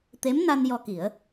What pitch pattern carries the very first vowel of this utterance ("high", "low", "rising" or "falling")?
rising